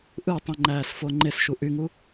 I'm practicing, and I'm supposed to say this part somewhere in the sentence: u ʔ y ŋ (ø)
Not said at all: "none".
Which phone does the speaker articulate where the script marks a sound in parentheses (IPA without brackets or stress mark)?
u